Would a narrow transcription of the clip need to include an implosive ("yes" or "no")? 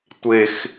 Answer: no